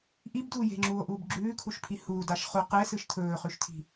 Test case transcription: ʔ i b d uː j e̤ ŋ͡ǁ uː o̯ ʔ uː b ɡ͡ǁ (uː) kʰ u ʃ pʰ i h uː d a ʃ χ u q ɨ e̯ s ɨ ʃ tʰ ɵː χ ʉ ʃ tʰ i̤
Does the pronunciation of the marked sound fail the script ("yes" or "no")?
yes